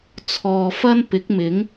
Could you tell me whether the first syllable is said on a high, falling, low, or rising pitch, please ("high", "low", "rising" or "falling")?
low